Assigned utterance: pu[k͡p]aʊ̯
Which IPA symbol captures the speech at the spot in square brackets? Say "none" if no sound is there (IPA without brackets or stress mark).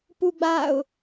ɡ͡b